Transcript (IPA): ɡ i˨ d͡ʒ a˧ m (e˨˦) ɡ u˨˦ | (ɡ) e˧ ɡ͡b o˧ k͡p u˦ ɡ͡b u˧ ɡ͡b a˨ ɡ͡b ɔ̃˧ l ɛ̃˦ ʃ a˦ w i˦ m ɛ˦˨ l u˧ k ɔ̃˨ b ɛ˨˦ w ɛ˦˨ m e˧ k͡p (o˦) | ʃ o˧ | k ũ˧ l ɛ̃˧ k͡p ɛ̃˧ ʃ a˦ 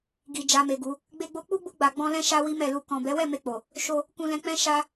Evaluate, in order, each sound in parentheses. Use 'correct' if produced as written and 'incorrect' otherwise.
incorrect: e˨, incorrect: ɡ͡b, incorrect: o˨

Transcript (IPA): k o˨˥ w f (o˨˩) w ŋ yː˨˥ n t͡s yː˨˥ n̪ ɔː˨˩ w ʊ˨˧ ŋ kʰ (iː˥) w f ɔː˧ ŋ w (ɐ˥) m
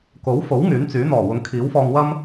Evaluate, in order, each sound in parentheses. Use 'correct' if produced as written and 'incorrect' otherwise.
incorrect: o˨˥, incorrect: iː˨˥, correct

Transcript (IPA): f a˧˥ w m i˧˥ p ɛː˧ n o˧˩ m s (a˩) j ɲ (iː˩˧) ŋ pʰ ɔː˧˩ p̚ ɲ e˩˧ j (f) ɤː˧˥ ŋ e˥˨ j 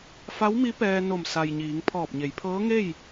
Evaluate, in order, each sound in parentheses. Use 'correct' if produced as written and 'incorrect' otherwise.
correct, correct, incorrect: pʰ

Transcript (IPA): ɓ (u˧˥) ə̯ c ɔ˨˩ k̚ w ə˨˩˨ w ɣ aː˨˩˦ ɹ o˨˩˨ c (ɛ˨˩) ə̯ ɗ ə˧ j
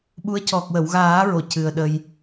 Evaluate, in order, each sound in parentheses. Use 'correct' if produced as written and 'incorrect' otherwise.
correct, incorrect: ɨ˨˩

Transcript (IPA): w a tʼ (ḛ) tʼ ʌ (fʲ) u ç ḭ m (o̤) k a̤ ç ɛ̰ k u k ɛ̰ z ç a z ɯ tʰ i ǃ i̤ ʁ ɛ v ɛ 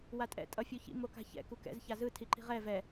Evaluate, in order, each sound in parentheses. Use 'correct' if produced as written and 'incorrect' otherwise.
incorrect: ɛ̰, correct, incorrect: o

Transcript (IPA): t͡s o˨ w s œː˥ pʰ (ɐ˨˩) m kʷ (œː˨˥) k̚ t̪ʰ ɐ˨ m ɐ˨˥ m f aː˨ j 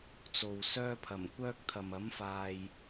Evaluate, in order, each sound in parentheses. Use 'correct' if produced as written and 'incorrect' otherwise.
correct, incorrect: œː˥

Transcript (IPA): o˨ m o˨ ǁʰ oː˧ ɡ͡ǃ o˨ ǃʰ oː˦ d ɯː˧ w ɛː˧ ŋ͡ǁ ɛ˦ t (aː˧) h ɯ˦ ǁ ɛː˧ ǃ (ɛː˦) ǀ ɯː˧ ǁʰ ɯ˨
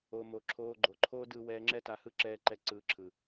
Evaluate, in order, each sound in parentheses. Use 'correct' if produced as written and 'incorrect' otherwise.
incorrect: a˧, incorrect: ɛ˦

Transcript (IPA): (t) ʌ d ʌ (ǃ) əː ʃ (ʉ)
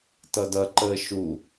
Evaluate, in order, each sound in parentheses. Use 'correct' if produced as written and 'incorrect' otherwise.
correct, correct, incorrect: u

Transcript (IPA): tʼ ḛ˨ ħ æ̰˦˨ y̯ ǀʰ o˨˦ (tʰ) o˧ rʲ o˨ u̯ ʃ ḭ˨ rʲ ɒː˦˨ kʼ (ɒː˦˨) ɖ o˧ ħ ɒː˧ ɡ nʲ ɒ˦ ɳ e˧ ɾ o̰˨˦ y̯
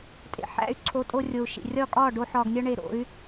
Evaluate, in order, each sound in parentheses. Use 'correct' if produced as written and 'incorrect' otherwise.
incorrect: tʼ, correct

